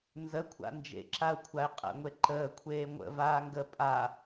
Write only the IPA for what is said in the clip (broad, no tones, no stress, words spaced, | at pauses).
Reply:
nzəkʷʰa̰ nd͡ʒḛǁaʊ̯kʷʰaɪ̯ qʼə̰ŋʷe ǃəːkʷʰeː ŋʷə̰ vaːŋɡə pʼa